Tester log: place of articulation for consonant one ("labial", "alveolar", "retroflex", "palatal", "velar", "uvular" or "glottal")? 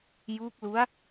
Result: palatal